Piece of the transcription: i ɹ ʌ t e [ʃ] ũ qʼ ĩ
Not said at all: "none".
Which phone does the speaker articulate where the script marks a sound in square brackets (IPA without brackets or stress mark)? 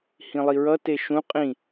ʃ